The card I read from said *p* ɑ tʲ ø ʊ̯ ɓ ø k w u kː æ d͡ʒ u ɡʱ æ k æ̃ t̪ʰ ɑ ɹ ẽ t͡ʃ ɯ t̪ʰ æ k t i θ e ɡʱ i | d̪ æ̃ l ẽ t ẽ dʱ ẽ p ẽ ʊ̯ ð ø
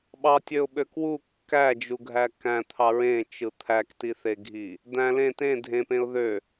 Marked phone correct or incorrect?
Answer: incorrect